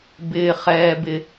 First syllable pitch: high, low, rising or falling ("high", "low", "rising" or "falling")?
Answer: low